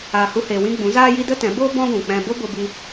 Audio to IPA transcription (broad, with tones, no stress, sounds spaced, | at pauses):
aː˧ h u˦ h eː˧ w ĩ˧ ɡ͡b ũ˨˦ z aː˦ j i˦ d ə˦ t ɛ̃˨˦ b oː˦ b ɔ̃˦ ɡʷ ũ˨ k͡p ɛ̃˧ b o˦ b o˦ b i˦